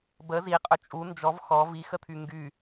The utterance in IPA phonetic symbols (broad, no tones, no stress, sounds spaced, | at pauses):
b ə z i qʼ ɵ t͡ʃʼ u n d͡ʒ ɔ v x ɔ v i x ə t̪ʰ y ŋ ɡ y